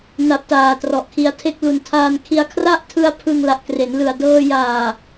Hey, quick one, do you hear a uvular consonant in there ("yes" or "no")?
no